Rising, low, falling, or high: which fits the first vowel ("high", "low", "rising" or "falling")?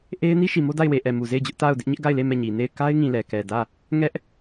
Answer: high